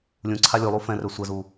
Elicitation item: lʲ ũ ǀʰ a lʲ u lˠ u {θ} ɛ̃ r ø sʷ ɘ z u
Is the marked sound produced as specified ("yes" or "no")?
no